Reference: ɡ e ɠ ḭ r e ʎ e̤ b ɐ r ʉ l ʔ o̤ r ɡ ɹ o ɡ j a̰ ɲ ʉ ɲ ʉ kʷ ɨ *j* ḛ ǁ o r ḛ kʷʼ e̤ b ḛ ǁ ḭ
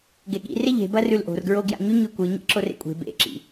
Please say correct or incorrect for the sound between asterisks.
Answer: incorrect